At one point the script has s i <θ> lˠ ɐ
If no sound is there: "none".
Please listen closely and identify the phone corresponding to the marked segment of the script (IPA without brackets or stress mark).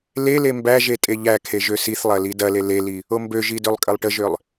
θ